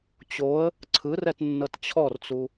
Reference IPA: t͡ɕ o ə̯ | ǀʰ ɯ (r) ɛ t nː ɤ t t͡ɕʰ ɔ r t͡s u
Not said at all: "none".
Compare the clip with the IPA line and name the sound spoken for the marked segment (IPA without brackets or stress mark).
r